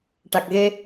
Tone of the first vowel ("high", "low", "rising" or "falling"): low